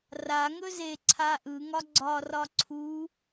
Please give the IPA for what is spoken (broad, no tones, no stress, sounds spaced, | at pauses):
r a ŋ ɵ z e ǀʰ a ʔ ɯ ŋ ɒ ɡ͡ǀ ɒ r ɒ ǀʰ u